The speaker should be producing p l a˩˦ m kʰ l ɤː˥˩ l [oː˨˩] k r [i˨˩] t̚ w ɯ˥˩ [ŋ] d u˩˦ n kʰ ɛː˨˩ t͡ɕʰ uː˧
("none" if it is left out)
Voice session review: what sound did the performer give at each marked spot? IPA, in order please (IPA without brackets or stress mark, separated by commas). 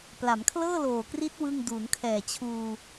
oː˨˩, i˦˥, ŋ